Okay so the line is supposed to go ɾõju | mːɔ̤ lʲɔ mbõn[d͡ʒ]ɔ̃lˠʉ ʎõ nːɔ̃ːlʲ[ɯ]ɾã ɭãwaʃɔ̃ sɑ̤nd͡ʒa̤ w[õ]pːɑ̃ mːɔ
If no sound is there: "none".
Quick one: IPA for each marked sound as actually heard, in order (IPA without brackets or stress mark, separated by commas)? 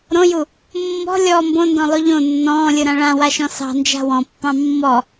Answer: d, ɯ, ɔ̃